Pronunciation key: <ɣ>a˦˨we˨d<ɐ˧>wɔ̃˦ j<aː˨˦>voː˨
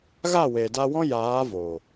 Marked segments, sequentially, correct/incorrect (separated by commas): correct, incorrect, correct